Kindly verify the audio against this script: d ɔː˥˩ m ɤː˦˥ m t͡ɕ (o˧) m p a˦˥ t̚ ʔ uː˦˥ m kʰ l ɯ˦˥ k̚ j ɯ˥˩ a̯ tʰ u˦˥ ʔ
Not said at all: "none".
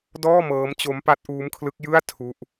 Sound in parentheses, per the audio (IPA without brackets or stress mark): o˦˥